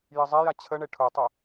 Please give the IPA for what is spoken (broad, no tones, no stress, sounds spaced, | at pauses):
j ə zˤ ɛ j a t͡ɕʰ ə ɳ e ʈʰ ʊ tˤ o